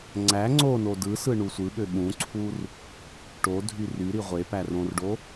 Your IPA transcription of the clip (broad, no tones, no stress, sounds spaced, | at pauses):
ŋ͡ǀ æ ŋ͡ǀ o n o d ɯ s ɯ ɳ u sʷ ɯ ɓ ø ɓ ũ ǀʰ u r | ʈ o dʱ y r y ɾ i ʁʷ e p æ r õ r ɖ o